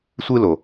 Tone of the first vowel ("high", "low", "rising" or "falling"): high